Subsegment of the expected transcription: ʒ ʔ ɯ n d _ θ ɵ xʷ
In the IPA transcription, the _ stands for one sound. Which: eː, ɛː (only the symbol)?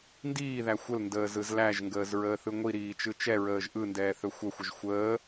ɛː